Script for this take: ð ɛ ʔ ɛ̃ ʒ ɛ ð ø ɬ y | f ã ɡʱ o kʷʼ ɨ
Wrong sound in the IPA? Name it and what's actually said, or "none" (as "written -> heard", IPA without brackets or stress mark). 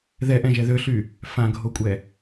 ɨ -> ɛ